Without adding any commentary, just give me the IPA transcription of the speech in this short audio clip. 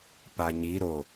paɲi ɾo

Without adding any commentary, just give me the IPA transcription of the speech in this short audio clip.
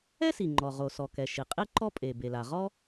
ɛ˥si˩ ŋ͡ǃɔ˩ʁo˩sɔ˩kɛ˩ ʃi˩ qʼi˥ ǃɔ˥ pʼe˩be˩la˩ʁɔ˥

